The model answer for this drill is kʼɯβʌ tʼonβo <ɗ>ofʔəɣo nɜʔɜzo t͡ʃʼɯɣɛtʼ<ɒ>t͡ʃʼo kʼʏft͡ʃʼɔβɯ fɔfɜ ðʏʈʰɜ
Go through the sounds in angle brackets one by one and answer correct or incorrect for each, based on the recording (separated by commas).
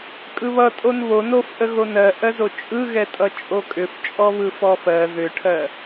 incorrect, incorrect